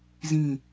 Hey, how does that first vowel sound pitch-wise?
falling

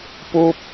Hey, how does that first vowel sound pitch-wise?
low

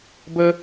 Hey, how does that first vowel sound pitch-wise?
high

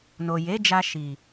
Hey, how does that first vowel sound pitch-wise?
low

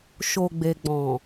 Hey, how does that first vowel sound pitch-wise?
low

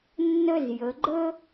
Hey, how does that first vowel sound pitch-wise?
high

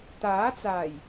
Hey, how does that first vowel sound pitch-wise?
rising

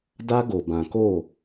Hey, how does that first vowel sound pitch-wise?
high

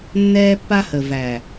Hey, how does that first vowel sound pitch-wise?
high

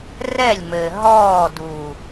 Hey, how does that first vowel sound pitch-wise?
falling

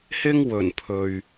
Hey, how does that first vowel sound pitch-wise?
high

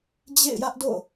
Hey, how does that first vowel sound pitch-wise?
falling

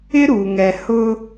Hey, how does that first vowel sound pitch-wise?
high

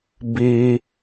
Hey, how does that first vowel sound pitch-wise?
high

